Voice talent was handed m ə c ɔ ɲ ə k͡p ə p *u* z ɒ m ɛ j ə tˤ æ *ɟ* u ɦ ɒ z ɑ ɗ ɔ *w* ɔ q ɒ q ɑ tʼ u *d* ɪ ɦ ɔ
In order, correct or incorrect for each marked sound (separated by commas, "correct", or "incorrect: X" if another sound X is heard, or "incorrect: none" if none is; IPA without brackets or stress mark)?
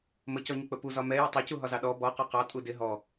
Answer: correct, incorrect: c, incorrect: b, correct